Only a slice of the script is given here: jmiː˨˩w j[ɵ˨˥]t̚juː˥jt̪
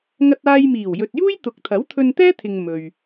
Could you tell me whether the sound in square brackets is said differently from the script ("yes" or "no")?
yes